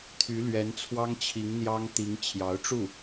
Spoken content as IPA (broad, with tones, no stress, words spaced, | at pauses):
t̪ʰy˧˥lɥɛ˧˥nt͡sʰwɑ˥ŋt͡ɕʰi˧˥ŋ n̪jɑ˥ŋt̪i˧˥ŋ t͡ɕʰjɑ˧˥ʊ̯ʈ͡ʂu˥˩